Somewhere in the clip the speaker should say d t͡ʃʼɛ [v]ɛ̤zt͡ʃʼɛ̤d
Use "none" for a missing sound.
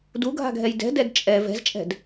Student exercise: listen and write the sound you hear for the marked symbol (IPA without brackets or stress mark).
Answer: v